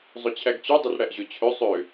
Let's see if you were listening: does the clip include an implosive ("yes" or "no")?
no